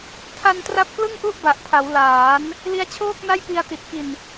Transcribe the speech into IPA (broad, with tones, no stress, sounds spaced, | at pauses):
tʰ a˧ n t r a˦˥ p̚ k l ɯ˥˩ ŋ ʔ u˥˩ ʔ b a˨˩ ʔ pʰ a˩˦ w l aː˩˦ n | l i˦˥ a̯ t͡ɕʰ oː˥˩ k̚ n a˥˩ j p i˧ a̯ t i˨˩ t̚ k i˨˩ n